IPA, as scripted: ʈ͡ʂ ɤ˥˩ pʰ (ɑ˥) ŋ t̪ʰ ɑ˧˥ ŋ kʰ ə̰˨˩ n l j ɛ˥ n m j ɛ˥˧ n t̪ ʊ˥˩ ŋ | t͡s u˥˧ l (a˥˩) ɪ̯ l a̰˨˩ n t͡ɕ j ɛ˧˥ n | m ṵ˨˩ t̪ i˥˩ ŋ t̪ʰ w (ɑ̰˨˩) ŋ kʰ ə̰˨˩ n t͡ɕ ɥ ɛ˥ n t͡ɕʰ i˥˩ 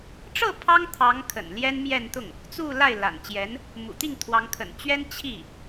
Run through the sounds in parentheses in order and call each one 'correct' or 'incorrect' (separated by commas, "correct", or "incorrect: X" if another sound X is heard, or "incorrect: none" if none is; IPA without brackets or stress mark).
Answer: correct, correct, incorrect: ɑ˧˥